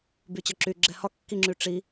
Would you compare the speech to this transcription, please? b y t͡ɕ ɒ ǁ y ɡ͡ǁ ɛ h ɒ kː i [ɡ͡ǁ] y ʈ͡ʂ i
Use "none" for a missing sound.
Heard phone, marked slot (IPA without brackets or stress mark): ŋ͡ǁ